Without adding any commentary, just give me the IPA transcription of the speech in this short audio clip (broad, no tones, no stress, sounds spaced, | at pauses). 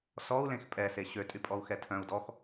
s ɔ u̯ l ẽ x pʼ ɛ s e ɕ ø tʼ y pʼ ɔ u̯ x ɛ tʰ œ̃ u̯ d ɔ x